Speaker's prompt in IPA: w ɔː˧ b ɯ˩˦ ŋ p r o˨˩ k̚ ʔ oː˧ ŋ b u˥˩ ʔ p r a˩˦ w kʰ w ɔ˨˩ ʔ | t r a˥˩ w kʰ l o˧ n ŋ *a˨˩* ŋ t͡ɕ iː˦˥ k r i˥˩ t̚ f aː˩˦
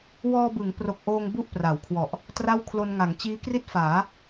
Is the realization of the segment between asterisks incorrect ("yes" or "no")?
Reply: yes